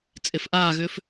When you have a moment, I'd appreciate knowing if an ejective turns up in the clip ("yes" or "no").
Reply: yes